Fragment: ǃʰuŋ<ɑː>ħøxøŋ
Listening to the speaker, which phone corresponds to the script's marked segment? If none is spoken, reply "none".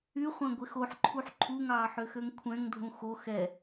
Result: ɑː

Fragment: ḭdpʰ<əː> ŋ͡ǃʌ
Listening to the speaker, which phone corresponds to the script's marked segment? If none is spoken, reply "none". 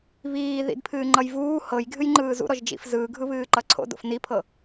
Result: ɨː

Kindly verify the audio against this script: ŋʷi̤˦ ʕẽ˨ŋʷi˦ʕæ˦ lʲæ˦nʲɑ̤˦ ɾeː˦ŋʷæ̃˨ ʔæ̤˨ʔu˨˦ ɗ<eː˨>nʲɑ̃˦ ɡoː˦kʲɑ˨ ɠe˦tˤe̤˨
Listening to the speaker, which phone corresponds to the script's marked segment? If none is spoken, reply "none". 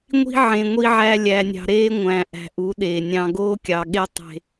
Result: eː˨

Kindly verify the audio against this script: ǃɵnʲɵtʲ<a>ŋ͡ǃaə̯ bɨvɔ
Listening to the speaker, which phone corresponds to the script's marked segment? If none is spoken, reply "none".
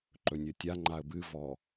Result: a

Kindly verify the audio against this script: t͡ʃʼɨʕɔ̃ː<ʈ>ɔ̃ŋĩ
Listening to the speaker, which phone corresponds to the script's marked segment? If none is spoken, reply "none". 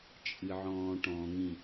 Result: ʈ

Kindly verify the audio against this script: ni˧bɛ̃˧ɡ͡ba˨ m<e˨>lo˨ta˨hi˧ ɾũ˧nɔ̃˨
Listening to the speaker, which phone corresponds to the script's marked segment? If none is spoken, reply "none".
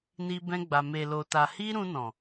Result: e˨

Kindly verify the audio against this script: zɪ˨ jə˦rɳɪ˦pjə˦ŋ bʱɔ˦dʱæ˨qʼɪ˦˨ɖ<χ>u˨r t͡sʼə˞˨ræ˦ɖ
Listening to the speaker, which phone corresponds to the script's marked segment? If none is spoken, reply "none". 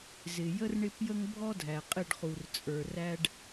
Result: χ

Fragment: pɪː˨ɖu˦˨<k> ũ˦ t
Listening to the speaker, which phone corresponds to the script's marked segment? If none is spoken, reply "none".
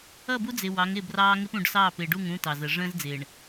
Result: ŋ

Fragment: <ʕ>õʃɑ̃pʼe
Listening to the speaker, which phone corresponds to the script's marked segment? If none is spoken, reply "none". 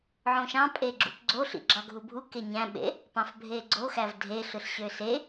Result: ʕ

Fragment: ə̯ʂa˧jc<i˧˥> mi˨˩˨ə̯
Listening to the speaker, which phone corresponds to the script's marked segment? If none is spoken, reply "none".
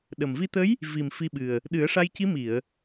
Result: i˧˥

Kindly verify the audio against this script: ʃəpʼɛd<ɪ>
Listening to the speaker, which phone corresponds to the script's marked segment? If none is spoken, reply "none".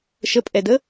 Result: ə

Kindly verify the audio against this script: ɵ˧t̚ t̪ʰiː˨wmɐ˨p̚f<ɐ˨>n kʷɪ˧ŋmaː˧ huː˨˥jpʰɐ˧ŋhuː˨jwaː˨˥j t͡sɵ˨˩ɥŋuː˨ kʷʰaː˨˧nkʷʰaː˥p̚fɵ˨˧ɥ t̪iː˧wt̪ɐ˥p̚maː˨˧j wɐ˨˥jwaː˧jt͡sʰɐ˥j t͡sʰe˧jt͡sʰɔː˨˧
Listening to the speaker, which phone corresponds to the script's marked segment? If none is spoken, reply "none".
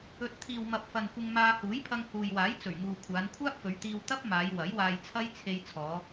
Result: ɐ˨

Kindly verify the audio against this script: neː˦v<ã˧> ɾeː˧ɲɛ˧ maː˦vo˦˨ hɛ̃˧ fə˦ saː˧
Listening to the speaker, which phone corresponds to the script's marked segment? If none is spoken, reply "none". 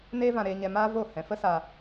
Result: ã˧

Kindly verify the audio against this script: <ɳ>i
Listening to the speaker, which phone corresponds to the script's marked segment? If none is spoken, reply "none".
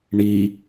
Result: ɳ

